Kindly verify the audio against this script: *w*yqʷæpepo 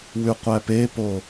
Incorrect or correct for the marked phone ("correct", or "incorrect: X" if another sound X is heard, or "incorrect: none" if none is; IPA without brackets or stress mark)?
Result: correct